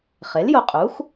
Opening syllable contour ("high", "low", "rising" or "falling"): rising